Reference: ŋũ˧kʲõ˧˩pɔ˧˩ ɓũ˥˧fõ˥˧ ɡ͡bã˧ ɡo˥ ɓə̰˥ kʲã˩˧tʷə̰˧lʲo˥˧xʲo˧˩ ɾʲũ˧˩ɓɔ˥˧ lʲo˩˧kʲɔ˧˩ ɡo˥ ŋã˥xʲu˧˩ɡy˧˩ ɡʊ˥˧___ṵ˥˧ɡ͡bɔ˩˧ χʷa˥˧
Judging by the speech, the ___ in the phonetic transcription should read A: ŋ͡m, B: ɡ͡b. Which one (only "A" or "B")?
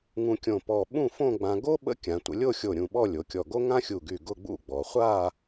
B